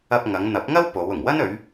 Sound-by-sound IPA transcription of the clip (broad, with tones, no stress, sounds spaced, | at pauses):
ɐ˧ p̚ ŋ ɐ˨˧ ŋ n̪ ɐ˨˥ p̚ ŋ ɐ˥ w p o˨˧ w ʊ˨˩ ŋ w ɐ˥ n ɵ˨˧ ɥ